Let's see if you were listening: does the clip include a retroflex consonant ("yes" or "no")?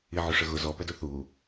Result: yes